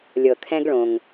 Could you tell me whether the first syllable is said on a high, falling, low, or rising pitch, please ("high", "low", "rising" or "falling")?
low